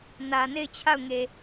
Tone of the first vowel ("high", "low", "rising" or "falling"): low